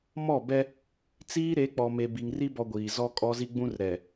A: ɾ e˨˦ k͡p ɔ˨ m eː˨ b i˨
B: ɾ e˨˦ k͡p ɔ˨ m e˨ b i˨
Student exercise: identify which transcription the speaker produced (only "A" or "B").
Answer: B